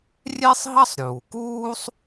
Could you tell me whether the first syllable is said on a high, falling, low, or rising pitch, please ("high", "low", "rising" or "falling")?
high